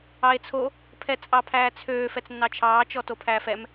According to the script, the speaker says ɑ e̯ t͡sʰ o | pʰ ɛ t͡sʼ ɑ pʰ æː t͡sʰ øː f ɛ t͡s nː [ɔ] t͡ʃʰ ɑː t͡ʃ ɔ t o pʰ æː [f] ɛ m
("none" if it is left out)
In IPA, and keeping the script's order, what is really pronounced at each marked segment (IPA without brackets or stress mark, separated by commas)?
ɑ, f